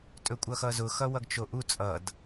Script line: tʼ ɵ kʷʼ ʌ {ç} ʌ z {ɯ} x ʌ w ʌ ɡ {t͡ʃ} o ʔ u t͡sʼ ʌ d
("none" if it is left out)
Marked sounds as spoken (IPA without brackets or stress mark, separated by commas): x, ʊ, t͡ʃ